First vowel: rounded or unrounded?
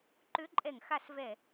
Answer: rounded